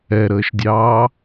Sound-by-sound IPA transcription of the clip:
ɛ ɾ əː ʃ dʲ ɑː

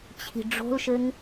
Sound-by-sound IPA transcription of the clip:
t͡ɕʰ i̤ ɖ͡ʐ o̤ l ʃ ɘ ŋ

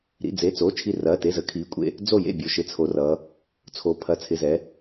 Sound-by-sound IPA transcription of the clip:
ɾ ḭ˩˧˩ d͡z e˩˧˩ t͡s o˩˧˩ t͡ʃʰ i˧˩ r ɐː˩˧˩ t e˩˧˩ z ə˩˧ kʰ iː˩˧ kʷʼ ḛ˧˩ | d͡z o˧˩ j ḛ˧˩ bʲ o˩˧ ʃ ɪ˩˧˩ t͡sʰ o˩˧ r ʌː˩˧ | t͡sʰ o˩˧ pʰ ɐ˩˧ t͡sʰ ɪ˩˧˩ z ɛ˩˧

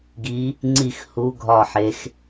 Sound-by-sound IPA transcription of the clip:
ɡ i˨˦ | ŋ͡ǀ i˦˨ x h u˨˦ ɡʱ ɒ˦˨ ħ e˨˦ x

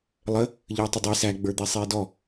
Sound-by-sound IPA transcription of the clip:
lˠ ə | ʎ ə˞ tˤ ɪ dˤ i s æ ɡ͡b ə˞ d̪ i sˤ iː d ɔ

